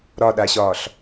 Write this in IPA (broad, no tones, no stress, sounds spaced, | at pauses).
ɾ ɒ ɗ a ɕ ɒː ɬ